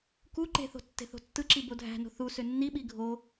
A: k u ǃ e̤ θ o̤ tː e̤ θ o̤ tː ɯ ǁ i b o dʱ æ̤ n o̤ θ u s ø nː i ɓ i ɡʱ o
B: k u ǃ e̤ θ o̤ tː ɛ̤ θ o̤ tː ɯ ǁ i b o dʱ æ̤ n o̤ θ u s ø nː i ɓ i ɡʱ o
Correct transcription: A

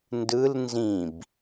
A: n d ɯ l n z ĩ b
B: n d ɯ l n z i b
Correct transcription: A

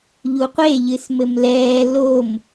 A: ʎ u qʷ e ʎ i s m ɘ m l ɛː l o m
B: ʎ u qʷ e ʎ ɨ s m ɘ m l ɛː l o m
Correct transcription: B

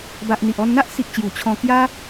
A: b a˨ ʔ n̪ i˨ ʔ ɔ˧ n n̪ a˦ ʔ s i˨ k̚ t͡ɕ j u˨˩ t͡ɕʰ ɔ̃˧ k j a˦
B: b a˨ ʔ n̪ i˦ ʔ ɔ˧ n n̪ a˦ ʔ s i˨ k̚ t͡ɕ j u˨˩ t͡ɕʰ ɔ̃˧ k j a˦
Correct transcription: A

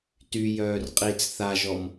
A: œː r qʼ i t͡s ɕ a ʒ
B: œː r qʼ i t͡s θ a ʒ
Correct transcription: B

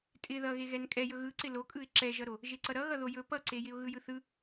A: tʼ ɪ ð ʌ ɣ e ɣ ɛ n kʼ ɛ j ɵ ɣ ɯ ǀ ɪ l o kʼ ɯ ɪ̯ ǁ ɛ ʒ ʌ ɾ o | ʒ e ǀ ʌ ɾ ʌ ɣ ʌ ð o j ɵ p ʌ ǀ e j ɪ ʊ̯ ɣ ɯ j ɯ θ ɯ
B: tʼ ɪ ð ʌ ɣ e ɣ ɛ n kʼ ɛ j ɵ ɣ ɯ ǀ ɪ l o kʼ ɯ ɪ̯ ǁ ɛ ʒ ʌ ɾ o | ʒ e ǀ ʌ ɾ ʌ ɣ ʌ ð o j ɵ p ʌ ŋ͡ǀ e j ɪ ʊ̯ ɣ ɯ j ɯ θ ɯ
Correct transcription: A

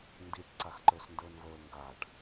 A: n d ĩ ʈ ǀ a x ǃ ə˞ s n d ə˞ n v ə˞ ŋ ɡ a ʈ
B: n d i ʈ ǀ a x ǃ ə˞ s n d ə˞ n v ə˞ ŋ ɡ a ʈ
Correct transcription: B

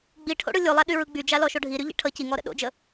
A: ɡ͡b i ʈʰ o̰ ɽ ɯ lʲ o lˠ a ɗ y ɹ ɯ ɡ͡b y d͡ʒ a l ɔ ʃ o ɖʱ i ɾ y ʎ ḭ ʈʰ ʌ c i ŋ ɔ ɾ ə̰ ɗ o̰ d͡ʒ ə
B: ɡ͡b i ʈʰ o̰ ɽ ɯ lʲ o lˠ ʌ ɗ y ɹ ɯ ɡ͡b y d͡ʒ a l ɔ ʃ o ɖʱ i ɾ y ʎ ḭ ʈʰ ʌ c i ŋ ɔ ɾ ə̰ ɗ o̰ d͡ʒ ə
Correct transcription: A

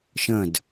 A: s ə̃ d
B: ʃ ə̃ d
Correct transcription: B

